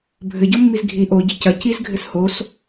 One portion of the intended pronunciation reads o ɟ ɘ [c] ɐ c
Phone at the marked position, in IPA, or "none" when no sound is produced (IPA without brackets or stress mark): c